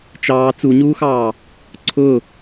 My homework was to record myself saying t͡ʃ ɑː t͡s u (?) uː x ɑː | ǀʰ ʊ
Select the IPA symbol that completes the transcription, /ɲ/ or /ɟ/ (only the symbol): ɲ